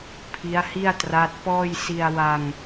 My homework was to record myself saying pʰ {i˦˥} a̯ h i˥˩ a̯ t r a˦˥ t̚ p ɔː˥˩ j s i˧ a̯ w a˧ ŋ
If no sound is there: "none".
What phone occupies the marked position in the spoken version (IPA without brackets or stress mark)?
i˦˥